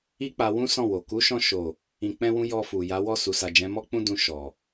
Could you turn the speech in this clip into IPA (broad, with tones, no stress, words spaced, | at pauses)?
i˦k͡pa˧wũ˦ sɔ̃˦˨wo˨ ku˨˦ʃɔ̃˧ʃo˨ | ĩ˧k͡pɛ̃˦wũ˦ jɔ˧fu˨ja˨˦ wɔ˦˨su˨ sa˨d͡ʒɛ̃˨˦mɔ˦ k͡pũ˦dũ˧ ʃɔ˨